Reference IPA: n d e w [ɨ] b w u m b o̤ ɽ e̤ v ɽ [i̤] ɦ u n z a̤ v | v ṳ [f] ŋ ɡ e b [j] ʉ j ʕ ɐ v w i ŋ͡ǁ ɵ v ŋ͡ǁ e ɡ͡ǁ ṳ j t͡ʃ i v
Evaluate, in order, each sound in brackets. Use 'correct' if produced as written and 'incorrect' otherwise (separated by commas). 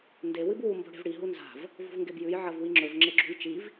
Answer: correct, incorrect, incorrect, correct